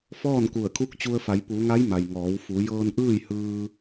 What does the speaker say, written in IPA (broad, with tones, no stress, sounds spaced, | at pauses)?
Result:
f ɔː˥˨ n k u˧˩ ə̯ kʰ u˧˥ k̚ t͡ɕ u˧ ə̯ f a˩˧ j p u˩˧ ŋ a˧˥ j m a˩ j ŋ ɔː˩˧ w f u˩˧ j ɤː˧ n ʔ ɯː˥˨ j h ɯː˧